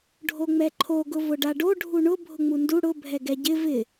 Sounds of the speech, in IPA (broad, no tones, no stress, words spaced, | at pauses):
ɖʱoŋ͡mɛǃʰo ɡʊvʊɖaɖo ɖʱuɳʊ bʱʊŋ͡mundu ɽʊ bʱɛɡɛɟɪ vɪ